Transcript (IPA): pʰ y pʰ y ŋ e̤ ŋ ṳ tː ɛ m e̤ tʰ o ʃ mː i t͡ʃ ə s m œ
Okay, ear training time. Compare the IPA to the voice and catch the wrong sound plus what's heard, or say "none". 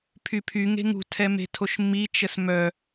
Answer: tː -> tʰ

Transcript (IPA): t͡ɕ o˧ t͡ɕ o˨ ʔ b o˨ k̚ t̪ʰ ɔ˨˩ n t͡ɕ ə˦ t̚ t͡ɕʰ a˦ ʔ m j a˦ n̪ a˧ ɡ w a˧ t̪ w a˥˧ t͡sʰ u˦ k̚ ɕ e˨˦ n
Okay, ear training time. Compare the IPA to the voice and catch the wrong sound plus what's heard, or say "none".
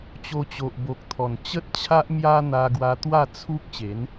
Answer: none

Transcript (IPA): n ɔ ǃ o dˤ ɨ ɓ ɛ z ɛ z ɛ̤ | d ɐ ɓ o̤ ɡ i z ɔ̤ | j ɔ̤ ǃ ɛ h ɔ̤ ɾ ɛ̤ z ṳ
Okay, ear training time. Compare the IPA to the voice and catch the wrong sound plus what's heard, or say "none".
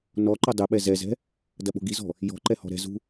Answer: none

